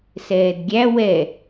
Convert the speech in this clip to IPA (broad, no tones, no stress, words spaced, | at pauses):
sɛːdɡʲæ wɛ